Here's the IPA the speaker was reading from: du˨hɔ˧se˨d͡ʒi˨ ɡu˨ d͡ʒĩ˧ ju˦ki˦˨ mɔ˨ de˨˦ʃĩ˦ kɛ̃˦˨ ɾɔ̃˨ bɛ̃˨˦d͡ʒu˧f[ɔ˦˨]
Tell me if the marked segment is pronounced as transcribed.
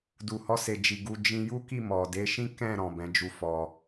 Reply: no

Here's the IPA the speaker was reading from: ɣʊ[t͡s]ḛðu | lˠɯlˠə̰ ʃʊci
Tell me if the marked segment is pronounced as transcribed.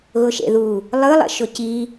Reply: no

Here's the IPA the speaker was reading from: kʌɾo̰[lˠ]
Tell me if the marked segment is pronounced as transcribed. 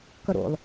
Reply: yes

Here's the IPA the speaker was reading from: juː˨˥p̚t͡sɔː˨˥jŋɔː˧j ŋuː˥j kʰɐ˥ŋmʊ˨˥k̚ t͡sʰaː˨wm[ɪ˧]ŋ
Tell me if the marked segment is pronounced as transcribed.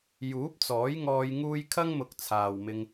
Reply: yes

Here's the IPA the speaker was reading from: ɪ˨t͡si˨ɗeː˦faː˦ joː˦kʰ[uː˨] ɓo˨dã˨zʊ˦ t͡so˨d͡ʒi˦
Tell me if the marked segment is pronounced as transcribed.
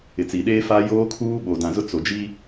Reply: no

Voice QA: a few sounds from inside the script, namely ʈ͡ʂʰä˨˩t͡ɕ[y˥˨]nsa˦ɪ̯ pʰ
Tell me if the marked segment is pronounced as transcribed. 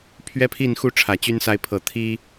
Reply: no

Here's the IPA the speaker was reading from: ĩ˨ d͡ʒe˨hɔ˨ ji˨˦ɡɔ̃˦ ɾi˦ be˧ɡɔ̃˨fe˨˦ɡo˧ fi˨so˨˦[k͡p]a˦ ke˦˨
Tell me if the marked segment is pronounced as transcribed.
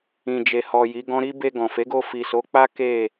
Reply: yes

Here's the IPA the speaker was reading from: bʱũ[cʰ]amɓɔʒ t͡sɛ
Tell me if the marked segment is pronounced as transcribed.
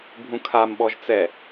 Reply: no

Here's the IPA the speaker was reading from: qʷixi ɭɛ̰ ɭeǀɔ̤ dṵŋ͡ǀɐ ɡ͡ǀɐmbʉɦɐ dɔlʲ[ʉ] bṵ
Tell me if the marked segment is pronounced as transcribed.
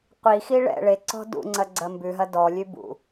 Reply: yes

